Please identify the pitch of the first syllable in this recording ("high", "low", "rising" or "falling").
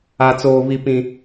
low